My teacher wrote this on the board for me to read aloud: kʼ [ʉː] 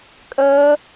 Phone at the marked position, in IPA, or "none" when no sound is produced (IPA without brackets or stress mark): əː